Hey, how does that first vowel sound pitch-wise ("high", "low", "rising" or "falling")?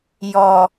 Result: low